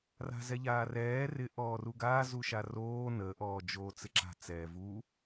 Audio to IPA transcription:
r a̤ z ɛ ʎ aː r ɛː r ɪ ʔ ɔː r u ɡ aː z u ʃ a r oː n ə ʔ ɔː d͡ʒ oː t͡s ɪ ǁ a̤ t͡s ɛː v u

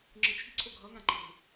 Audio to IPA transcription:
ŋ͡ǁ ɯ t͡ʃʰ i̤ ǀʰ o ɡʱ ʌ ŋ ã ǃ e̤

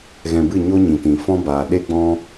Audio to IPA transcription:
ɣ ɛ̃˨ b ɨ˦˨ ɲ o˦ ɲ ĩ˨ t ĩ˨ f ɔ̃˦ b aː˨ ɗ e˦ ɡ͡b ɔ̃˦

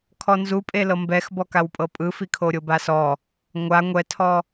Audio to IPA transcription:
kʰ ɔ n z u pʼ e l ɤ m b ɛ x b ɔ k a w pʼ ɤ pʼ ɯ f i kʰ o ɾʲ o b a s ɔ | ŋʷ a ŋʷ ɛ tʰ ɔ

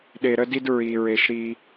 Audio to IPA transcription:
ɗ e˨ ɾ ə˦ d i˦ d ɹ i˨ ɹ e˨ ʃ ɾ i˦

